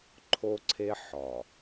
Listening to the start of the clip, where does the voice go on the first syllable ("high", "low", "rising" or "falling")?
high